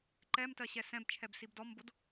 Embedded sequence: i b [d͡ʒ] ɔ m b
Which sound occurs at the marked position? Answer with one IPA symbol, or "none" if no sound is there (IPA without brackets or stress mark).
d